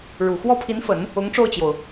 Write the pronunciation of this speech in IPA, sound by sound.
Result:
ɻ u˨˩ x w ɔ˥˩ pʰ i˧˥ n f ə˨˩˦ n | ʊ˧˥ ŋ ʈ͡ʂ o˥˩ ʊ̯ t͡ɕ j o˩ ʊ̯

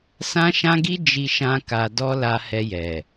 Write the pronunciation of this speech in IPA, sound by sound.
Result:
s ã˦ ʃ ã˦ ɡ i˦ d͡ʒ i˧ ʃ ã˧ k a˧ d ɔ˦ l a˧ h ɛ˧ j ɛ˨

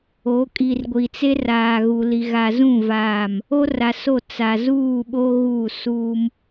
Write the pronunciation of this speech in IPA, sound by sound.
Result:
o˨˦ kʼ i˨ r ɡʷ i˨ t͡s e˦ r aː˨ ɣ u˨ l i˨ ɣ a˨ z ũ˦˨ v aː˦˨ m | o˦ r a˨ s o˦˨ t͡s a˨ z uː˦˨ ɓ o˦ ɣ u˦˨ s uː˦ m

